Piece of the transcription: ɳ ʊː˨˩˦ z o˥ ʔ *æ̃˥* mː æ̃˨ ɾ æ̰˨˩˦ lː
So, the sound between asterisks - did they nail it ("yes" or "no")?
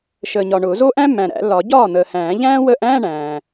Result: yes